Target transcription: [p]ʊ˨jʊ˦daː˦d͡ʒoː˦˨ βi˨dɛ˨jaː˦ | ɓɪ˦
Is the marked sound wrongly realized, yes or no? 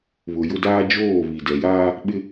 yes